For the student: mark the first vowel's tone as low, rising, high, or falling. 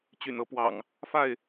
low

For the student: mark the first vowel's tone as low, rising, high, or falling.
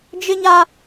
high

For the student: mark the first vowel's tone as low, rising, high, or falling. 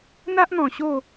high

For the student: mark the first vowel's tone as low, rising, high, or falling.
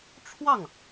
falling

